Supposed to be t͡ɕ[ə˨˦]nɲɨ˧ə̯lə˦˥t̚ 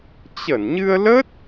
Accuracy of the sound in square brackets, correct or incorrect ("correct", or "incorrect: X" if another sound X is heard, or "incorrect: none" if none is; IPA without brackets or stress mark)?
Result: incorrect: ə˧˩